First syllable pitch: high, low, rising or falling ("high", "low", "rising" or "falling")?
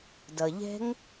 low